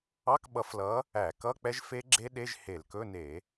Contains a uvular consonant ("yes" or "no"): no